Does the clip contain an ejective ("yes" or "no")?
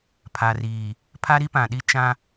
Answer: no